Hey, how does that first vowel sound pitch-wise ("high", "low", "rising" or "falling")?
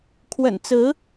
low